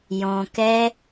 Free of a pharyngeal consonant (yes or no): yes